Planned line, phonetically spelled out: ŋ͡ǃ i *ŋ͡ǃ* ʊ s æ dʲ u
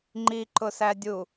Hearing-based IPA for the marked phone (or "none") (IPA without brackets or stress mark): ǃ